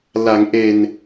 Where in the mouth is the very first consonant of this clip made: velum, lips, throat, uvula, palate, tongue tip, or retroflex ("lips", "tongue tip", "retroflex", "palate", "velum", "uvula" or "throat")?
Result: tongue tip